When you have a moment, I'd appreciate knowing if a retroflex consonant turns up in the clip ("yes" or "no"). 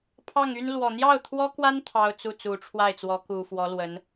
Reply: yes